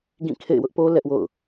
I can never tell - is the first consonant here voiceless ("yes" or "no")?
no